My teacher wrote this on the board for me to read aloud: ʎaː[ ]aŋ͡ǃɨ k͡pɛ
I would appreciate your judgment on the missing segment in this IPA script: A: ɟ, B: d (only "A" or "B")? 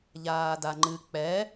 B